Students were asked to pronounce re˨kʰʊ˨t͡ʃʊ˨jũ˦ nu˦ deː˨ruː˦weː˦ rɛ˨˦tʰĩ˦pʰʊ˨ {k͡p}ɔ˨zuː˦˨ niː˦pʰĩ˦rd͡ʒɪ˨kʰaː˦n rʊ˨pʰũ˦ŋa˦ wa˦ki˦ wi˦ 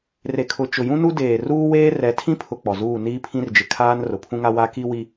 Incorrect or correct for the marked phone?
correct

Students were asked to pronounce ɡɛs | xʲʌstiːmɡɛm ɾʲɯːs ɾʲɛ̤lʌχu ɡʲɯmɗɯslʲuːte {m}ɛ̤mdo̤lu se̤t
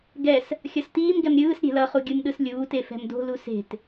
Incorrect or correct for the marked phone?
incorrect: f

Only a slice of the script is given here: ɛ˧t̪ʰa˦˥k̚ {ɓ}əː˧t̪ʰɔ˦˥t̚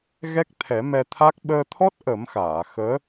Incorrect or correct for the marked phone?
correct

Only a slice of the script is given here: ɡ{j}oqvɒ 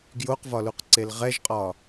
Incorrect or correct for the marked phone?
correct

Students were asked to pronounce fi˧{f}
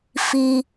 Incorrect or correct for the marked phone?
incorrect: none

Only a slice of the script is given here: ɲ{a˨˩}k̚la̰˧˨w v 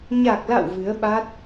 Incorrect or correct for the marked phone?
correct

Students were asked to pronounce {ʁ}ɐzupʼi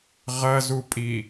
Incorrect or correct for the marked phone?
correct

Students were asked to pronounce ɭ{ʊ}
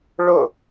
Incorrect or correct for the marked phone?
correct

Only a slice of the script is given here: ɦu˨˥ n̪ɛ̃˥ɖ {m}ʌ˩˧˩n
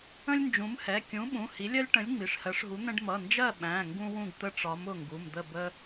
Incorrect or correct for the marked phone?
correct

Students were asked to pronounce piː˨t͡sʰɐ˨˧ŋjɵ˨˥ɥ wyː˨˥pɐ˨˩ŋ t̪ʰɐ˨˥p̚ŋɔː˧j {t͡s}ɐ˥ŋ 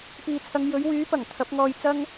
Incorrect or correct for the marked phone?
correct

